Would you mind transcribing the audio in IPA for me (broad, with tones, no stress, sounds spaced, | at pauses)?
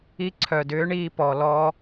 i˧ ǀʰ œ˨ d ʏː˨˦ ɳ iː˧ p ɔ˨ l ɔ˧